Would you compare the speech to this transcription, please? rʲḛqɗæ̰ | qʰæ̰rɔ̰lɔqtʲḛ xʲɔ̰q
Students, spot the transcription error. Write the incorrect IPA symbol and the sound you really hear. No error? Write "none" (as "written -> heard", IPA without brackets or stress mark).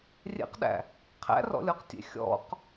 l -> lʲ